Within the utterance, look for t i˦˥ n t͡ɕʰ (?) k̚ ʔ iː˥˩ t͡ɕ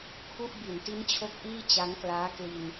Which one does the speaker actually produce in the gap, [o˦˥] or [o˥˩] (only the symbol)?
o˦˥